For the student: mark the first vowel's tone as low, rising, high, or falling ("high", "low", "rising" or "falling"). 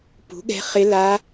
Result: rising